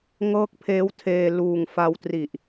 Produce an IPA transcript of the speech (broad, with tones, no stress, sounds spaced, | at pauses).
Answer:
ŋ ɤː˦˥ k̚ pʰ eː˦˥ w tʰ eː˧ l uː˨˩ ŋ f a˧ w t r i˨˩ ʔ